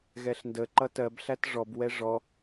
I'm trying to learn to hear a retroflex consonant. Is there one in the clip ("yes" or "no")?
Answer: yes